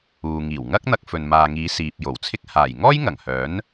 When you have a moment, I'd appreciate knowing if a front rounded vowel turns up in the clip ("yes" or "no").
yes